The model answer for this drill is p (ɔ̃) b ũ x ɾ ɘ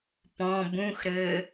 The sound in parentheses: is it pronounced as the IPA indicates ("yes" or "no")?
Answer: yes